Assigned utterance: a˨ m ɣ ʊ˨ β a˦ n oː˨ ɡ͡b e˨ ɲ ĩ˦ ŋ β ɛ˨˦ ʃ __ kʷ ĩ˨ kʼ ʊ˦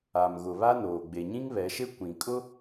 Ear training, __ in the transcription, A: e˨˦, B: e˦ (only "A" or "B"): B